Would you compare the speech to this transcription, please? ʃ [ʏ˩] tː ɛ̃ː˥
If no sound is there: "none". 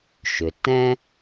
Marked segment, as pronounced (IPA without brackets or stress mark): ʏ˩